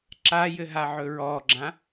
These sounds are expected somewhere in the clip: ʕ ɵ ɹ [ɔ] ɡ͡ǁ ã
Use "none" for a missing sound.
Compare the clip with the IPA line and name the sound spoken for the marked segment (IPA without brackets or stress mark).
ɔ